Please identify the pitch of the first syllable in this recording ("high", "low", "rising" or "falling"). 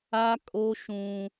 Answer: high